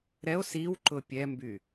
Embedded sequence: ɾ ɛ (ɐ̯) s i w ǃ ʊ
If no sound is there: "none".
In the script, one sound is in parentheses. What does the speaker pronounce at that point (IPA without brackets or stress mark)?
o̯